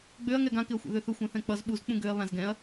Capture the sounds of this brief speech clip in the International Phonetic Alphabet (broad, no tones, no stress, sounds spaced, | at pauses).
ɡ͡b ø ɐ̯ ŋ ɛ ɡ ã k ɪ ɐ̯ xʷ ɛ̰ ð ø θ ɵ xʷ ɛ̃ θ ɛ̃ k͡p ʌ z ɓ u z k͡p ũ ɡ ø ɐ̯ β ã z ɡ ɛ̃ ɐ̯